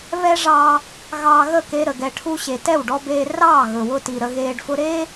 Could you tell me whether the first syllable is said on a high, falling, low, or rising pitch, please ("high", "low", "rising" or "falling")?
high